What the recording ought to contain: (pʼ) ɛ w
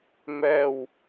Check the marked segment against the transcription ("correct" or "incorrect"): incorrect